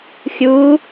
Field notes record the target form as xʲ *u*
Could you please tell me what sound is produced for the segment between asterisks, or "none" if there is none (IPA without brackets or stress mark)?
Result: uː